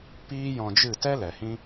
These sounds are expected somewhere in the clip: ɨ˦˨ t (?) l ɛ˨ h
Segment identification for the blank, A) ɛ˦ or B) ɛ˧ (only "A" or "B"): A